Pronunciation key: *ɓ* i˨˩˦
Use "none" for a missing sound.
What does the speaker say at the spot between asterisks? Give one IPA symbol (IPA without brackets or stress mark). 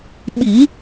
ɓ